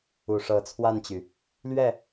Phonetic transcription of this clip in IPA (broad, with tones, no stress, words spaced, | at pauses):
u˨˩ʂɤ˨˦t͡sʰwa˥˨nt͡ɕy˩ | lɥɛ˥˨